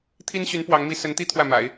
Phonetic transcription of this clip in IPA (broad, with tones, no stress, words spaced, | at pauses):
t̪ʰi˥nɕy˧˥n pwɑ˧˥ŋmi˥ sə˧˥nt̪i˥ t̪ʰwä˥˩ma̰˨˩˦ɪ̯